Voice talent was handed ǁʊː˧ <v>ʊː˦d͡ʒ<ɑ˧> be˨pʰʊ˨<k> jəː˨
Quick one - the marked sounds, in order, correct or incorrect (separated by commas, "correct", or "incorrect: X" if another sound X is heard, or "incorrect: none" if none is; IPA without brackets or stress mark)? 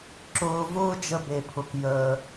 correct, incorrect: ə˧, correct